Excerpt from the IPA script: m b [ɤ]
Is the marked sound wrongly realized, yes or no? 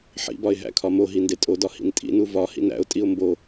yes